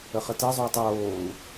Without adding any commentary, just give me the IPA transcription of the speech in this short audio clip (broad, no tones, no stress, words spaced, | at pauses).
əχətɜzˤoːtˤ oːu̯